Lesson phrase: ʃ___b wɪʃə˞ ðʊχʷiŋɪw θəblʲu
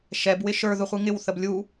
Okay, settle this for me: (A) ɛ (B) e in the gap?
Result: A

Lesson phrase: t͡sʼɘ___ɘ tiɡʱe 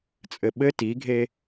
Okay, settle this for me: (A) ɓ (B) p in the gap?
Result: A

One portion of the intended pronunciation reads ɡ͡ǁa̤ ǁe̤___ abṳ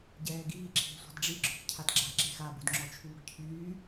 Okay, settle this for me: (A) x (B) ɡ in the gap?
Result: A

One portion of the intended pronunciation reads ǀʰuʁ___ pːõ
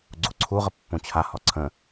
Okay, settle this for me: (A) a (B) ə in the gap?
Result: B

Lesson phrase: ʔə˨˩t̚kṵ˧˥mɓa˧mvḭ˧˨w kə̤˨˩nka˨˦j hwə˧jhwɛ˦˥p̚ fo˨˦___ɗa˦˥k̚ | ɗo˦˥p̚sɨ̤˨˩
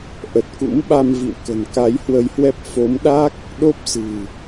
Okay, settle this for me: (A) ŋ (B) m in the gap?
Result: B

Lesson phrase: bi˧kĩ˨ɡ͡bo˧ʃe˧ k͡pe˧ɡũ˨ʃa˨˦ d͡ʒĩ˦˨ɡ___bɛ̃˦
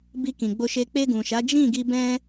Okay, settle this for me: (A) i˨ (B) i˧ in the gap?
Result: B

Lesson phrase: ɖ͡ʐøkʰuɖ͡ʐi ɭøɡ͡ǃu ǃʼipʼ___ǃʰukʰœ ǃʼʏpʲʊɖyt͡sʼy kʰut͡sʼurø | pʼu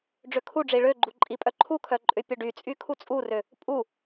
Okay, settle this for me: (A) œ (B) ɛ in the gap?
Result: A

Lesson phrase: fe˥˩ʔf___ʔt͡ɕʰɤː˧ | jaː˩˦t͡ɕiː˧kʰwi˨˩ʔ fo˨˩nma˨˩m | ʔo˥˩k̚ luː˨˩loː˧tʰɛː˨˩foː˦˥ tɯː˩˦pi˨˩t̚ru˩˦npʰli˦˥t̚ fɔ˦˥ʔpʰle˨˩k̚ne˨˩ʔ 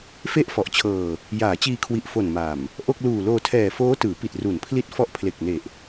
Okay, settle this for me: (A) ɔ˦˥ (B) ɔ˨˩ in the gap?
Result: B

